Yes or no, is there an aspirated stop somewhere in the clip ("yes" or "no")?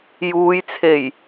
yes